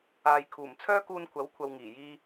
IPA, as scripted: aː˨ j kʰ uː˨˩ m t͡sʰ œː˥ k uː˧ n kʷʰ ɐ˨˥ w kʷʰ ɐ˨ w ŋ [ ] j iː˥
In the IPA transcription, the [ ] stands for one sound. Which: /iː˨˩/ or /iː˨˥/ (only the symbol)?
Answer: iː˨˩